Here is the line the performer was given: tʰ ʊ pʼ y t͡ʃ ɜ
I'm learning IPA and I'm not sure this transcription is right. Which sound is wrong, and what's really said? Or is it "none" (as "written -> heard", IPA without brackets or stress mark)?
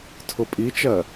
y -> i